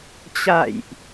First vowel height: low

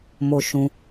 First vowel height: mid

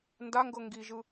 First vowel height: low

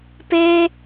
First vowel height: mid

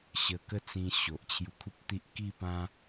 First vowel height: mid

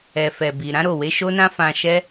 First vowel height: mid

